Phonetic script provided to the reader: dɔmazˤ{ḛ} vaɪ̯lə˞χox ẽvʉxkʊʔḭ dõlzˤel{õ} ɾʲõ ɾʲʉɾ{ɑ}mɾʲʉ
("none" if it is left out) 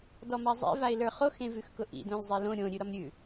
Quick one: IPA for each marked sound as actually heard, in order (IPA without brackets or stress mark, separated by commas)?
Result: ḛ, õ, ɒ